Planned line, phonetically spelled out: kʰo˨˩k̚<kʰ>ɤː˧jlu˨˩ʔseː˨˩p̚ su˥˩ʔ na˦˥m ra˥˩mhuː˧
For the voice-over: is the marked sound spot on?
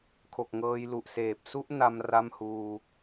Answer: no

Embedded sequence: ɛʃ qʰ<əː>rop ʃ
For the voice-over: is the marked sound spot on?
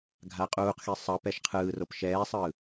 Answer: no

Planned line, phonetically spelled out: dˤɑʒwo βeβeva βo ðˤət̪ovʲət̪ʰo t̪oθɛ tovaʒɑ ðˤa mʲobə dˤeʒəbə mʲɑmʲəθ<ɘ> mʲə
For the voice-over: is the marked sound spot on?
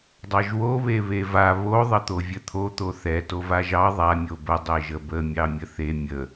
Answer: no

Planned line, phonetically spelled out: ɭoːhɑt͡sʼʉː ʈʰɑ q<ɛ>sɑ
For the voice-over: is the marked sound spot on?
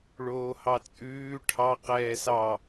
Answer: no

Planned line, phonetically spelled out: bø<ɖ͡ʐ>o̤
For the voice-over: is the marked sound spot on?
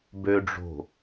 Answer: yes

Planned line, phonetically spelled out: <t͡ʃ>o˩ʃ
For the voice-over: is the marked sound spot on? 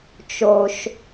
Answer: yes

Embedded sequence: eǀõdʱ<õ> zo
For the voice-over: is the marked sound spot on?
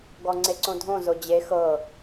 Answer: yes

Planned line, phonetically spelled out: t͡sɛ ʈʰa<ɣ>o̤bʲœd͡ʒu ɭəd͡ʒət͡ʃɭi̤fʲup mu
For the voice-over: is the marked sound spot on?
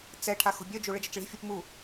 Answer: no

